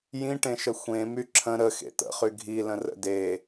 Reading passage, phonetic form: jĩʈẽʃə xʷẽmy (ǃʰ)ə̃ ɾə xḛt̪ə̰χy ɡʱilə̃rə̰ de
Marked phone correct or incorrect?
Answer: incorrect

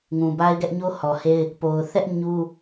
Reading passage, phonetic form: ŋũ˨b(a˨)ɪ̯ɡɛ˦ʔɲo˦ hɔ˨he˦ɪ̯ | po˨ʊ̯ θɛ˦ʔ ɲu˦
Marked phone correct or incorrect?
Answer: incorrect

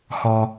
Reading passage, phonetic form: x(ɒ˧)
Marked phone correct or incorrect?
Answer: correct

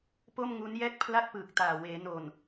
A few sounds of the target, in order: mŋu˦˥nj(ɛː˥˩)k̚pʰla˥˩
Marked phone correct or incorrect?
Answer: correct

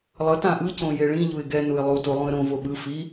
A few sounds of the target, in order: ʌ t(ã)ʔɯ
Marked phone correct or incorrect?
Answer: correct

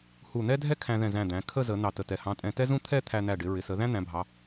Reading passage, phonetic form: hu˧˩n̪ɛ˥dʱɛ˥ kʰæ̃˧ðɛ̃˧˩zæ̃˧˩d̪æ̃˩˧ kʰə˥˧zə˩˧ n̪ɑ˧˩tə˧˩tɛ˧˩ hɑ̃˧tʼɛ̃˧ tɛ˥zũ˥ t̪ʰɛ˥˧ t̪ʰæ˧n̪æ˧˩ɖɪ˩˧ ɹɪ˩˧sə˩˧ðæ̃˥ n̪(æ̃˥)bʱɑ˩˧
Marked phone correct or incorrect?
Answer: incorrect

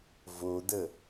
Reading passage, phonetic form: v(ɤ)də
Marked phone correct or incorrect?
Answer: incorrect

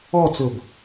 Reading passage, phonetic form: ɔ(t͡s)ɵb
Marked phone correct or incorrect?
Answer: correct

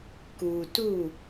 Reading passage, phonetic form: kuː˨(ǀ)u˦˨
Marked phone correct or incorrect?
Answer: incorrect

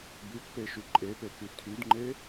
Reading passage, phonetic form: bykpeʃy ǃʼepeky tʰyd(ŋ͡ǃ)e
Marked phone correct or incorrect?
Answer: correct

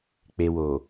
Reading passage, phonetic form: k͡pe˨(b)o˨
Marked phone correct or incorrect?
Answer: incorrect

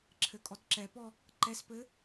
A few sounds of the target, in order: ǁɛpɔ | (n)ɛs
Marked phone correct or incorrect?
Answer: incorrect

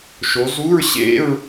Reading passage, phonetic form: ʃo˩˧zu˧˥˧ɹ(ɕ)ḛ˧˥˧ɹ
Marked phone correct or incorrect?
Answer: correct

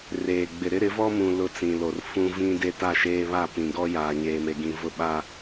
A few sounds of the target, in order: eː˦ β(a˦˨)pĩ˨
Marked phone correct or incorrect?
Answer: correct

